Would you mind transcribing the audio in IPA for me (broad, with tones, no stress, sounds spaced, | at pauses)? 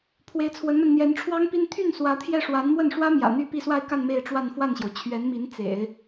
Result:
pʰ w e˧˥ ɪ̯ t͡sʰ w ə˧˥ n m a˧ n n̪ j ɛ˧˥ n ʈ͡ʂʰ w ɑ˥ ŋ p i˥ n t̪ʰ y˥˩ n s w ä˧˥ t̪ʰ j ɛ˥˩ ʂ w a˧˥ n m w ə˥˩ n ʂ w ä˥ m j ä̰˨˩ n̪ y˥˧ p i˥˧ s w a˥˧ ɪ̯ k a˥˧ n m e˥˧ ɪ̯ ʈ͡ʂ w a˥˧ n f w a˥˩ n ɕ j o˩ ʊ̯ t͡ɕʰ ɥ ɛ˧˥ n m i˧˥ n t͡s ḛ˨˩˦ ɪ̯